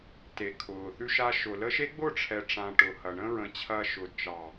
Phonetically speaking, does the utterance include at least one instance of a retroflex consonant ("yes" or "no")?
yes